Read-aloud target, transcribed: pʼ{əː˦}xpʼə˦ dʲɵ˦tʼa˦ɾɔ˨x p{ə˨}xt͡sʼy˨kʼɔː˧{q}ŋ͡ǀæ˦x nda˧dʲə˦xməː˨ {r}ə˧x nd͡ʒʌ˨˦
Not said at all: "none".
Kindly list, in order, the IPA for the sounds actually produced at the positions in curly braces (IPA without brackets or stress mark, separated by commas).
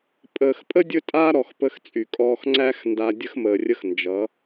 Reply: əː˨, ə˧, x, rʲ